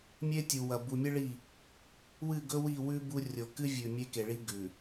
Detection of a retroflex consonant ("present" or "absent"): present